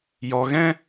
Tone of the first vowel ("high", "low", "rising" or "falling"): low